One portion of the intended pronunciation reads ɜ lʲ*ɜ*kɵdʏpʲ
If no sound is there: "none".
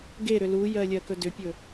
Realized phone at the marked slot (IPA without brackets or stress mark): ɜ